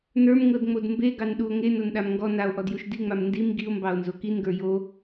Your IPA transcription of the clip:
n ə˞ m ŋ ɤ d ŋ͡m o d m b e ɡ ɑ n ɗ u o̯ ŋ e n o n ɗ a m ŋ ɡ ɔ n a o̯ ʔ ɔ d j u ʃ d i ŋ͡m a m n d i m ɡ i o̯ m b ɑ o̯ n z o k i n ɡ ə˞ j o

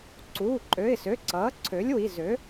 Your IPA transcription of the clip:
ǀ uː˩˧˩ ǃʼ ø˩˧˩ ɪ̯ s ø˩˧˩ ǀ ʌː˩˥ ǀʰ ø˩˥ lʲ w i˩˧˩ z ø˩˥

